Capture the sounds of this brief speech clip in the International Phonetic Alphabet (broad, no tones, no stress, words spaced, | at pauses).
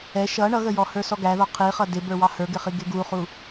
ɛ ʃʌ ɳʌɣəjɔ hə˞sɔɡæðɔ qʰiχʌ dɪbə˞ wɑhə˞ɡɪχi ɡɪɡuχu